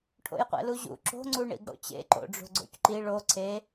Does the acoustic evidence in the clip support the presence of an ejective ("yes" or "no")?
no